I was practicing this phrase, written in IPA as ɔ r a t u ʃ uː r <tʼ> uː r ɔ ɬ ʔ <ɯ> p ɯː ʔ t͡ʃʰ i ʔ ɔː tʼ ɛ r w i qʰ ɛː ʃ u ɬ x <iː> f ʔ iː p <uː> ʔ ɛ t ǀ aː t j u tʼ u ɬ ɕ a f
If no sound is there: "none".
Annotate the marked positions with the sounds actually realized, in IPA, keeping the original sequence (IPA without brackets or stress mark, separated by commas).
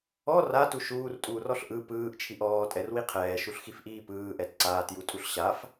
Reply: tʼ, ɯ, i, ɯː